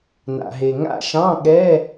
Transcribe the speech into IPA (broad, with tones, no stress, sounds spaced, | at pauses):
n a̰˩ ɦ e˩ ŋ a̰˦˨ ʃ ɑ̃˧˥˧ ɠ ɛ˧˥˧